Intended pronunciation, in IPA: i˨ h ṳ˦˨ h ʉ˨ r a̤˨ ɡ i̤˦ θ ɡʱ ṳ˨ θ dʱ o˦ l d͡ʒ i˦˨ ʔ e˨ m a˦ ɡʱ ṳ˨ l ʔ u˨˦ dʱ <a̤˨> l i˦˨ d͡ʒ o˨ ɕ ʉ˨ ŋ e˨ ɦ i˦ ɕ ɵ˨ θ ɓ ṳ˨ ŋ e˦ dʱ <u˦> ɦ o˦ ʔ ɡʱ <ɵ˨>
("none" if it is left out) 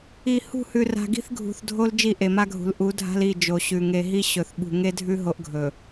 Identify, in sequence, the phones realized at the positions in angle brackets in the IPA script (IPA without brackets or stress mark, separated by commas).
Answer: a̤˦, ʉ˦, ɵ˨